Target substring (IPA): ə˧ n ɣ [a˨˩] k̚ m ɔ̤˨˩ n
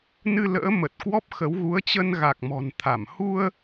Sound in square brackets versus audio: correct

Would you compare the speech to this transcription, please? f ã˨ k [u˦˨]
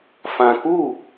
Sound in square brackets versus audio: correct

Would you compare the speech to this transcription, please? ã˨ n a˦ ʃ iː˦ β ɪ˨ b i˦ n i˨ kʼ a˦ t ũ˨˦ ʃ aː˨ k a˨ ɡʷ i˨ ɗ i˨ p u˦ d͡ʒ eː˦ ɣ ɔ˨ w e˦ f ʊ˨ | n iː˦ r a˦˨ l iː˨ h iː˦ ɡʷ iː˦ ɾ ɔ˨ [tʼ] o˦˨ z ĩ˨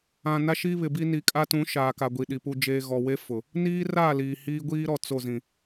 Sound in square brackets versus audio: incorrect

